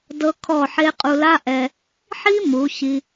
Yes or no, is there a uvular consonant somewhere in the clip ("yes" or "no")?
yes